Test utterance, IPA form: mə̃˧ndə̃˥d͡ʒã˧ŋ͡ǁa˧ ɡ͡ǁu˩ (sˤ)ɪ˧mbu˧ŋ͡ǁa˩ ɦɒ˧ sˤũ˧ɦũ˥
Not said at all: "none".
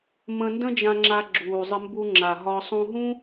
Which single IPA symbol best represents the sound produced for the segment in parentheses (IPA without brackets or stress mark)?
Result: zˤ